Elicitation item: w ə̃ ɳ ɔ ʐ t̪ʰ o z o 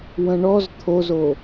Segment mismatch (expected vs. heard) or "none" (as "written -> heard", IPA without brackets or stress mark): ʐ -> z